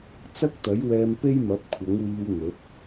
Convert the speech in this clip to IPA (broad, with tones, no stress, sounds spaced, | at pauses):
t͡s ɐ˥ k̚ t̪ ɐ˨˥ j w ɛː˧ m p e˥ j m ɐ˨˥ p̚ kʷʰ ɐ˨˥ ŋ w iː˧ w n̪ ɵ˨˥ t̚